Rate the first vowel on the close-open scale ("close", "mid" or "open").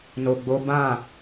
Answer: mid